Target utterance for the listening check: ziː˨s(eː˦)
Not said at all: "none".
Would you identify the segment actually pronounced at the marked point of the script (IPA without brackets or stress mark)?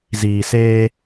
eː˦